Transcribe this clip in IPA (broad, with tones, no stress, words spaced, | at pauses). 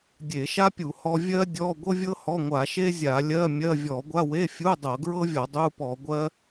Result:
dʲe˧˩˧ʃa˥pʲu˧˩˧ hɔ˥ vʲɜ˥dʲɔ˧˥˧ɡʷɤ˥vʲɤ˥ hɔ˧˥˧ŋʷa˧˩˧ʃe˥ zʲa˧˩˧lʲɜ˧˥˧ mʲɜ˧˥˧ vʲɔ˧˩˧ɡʷa˧˥˧we˧˥˧fʲu˧˥˧ dˤɤ˧˩˧ɡɹɤ˥vʲɔ˧˩˧ dˤu˧˥˧pɔ˧˩˧ɡʷɜ˥